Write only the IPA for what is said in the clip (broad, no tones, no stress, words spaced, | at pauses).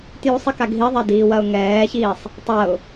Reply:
tjusˤika ɡʱiðˤɛdiːwɐʊ̯ ŋɛːçiːsˤ | tˤɐʊ̯